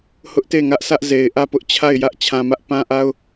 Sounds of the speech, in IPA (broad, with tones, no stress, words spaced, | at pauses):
hʊ˦ʔte˦˨ŋä˦ʔsʰä˦ʔ ze˨ɪ̯ ʔä˦˨pʊ˦ʔt͡ɕʰa˦˨ɪ̯ jä˦ʔ t͡ɕʰã˨mä˦ʔpã˦ʔa˦ʊ̯